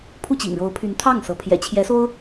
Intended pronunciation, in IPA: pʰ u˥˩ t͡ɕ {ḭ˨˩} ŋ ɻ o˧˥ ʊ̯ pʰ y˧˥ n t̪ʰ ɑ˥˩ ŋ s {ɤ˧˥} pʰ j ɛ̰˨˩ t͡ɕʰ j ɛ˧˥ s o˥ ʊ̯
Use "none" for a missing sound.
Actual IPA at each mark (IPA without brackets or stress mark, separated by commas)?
ḭ˨˩, ɤ˧˥